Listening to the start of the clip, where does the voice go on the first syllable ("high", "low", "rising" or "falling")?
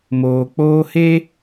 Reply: low